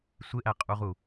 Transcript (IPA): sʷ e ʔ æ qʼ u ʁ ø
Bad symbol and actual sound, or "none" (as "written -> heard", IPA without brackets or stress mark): ø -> u